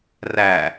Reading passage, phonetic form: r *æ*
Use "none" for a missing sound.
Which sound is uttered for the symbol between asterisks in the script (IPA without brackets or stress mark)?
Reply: æ